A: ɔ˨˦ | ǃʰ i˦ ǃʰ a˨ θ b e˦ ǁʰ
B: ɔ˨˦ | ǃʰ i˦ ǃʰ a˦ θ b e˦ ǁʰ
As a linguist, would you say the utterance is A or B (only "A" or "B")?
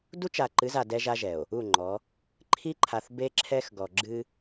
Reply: A